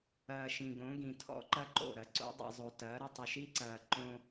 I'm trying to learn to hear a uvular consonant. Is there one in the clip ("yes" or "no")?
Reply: no